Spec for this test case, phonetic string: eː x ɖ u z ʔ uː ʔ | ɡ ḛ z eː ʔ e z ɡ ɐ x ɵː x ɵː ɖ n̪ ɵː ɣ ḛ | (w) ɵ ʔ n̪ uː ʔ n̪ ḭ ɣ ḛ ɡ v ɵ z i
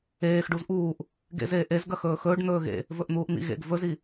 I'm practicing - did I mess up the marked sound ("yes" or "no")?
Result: yes